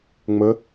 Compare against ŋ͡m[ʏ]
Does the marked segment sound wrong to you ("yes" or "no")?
yes